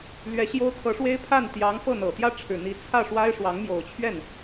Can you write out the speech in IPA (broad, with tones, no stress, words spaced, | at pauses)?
lɥɛ˧˥ɕjo˥ʊ̯kʰɤ˧˥ʂwe˥ɪ̯ pʰa˥˩nt̪jɑ˧˥ŋfɤ˥˩ n̪ɤ˨˩t̪jä˥ʈ͡ʂʰɻ̩˨˩n̪i˧˥ t͡sʰä˥˩ ʂwa˥ɪ̯ ʂwɑ˧˥ŋmjo˨˩ʊ̯t͡ɕʰɥɛ˥˩n